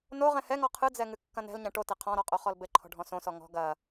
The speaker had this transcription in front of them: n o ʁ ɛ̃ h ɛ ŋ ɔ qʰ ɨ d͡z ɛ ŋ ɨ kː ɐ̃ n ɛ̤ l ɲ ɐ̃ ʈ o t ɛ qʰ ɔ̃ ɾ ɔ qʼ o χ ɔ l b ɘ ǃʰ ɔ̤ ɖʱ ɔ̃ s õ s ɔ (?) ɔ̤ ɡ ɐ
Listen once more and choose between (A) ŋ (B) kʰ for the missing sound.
A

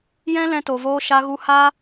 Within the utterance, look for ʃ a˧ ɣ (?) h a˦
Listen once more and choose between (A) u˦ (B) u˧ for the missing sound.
B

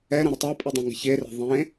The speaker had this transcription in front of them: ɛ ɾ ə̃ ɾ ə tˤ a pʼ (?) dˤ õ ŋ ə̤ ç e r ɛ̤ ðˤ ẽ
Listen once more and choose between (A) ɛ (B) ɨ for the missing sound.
B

